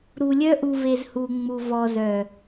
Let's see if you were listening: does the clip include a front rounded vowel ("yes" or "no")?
yes